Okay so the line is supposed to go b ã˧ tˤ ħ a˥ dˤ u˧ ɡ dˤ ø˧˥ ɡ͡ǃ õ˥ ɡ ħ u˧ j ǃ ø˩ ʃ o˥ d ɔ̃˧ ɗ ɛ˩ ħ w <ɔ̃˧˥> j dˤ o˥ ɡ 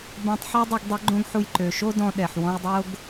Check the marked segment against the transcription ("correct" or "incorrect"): incorrect